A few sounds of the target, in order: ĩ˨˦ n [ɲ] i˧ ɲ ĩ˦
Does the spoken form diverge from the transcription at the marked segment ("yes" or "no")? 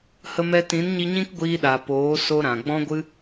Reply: no